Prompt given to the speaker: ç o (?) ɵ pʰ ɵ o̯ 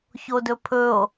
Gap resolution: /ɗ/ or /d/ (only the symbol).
d